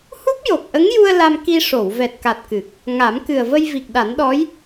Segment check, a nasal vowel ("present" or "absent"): absent